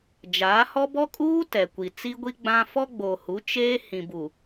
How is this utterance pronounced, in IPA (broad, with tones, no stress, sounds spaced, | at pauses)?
d͡ʒ aː˨˦ h ɔ˦ b ɔ˦ kʼ uː˦ t ɛ˨ kʷ i˨ t͡s i˦ ɡʷ i˦ ɡ͡b ã˦ f ɔ˦ ɡ͡b o˨ h u˨˦ t͡ʃ eː˦ h ĩ˨ b u˨